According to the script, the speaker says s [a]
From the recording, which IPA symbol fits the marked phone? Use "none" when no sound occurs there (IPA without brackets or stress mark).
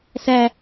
æ